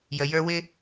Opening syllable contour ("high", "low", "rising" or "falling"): low